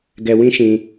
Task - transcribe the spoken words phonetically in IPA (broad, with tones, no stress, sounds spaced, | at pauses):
ɡ ɛ˧ w ĩ˦ ʃ ĩ˧